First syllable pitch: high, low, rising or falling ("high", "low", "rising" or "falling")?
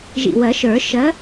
low